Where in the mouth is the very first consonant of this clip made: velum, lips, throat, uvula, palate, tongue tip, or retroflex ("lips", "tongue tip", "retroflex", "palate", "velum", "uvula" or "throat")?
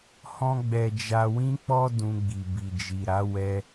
throat